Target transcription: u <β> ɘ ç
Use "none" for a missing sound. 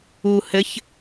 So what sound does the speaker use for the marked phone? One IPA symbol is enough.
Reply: h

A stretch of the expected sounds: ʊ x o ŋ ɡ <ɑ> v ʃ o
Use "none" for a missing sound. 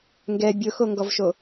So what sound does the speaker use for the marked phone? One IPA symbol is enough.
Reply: ɔ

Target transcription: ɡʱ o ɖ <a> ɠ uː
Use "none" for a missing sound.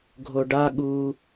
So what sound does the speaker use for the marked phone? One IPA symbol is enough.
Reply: a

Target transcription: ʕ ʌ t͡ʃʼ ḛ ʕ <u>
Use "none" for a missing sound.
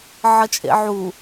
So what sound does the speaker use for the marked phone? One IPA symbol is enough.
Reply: u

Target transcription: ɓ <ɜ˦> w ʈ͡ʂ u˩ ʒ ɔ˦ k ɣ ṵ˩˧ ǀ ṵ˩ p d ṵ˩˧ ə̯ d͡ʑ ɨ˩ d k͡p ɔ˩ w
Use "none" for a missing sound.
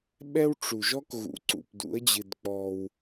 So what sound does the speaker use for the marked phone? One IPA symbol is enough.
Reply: ɛ˦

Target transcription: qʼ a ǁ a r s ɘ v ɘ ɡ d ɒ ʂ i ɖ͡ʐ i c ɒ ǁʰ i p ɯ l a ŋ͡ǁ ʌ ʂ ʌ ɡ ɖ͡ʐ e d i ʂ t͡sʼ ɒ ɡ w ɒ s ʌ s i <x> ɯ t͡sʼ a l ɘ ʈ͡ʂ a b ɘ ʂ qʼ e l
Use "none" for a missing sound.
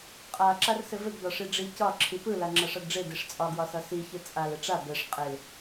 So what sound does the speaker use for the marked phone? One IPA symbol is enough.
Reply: ç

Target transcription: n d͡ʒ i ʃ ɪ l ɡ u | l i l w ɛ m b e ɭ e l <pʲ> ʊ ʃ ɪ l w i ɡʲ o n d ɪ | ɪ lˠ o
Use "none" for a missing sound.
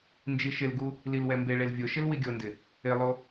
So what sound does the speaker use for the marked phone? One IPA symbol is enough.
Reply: vʲ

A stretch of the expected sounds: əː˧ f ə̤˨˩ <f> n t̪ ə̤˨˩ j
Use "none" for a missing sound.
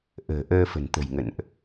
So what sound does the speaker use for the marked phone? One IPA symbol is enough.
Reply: none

